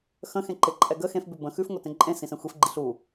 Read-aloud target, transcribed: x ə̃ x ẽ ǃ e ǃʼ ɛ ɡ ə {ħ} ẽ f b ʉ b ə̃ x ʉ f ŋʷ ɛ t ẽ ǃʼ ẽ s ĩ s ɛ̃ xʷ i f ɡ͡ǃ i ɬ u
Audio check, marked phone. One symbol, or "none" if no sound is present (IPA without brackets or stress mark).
x